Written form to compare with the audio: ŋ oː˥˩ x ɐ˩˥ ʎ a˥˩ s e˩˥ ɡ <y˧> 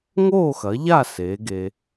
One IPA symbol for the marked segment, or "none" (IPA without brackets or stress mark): e˧